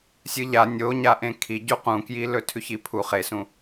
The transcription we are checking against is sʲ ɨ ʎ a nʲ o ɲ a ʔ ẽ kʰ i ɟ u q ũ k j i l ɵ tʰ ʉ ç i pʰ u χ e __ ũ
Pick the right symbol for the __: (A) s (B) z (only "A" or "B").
A